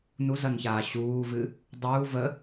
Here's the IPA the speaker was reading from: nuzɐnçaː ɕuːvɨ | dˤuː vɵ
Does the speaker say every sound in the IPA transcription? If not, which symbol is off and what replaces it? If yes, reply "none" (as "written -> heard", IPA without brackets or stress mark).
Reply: ɵ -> ə